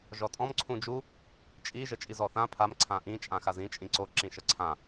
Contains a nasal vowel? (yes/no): yes